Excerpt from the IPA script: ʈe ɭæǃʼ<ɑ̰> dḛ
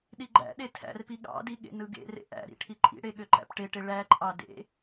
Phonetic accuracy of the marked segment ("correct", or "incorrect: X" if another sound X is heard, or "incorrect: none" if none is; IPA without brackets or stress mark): incorrect: ɑ